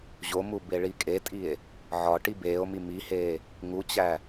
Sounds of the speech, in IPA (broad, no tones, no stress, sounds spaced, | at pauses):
ʑ o m u b e ɭ i kʼ e tʼ i e̯ | ʕ ɒ ʈ i b eː o̯ m i m i h eː | ŋ u t͡ɕ æ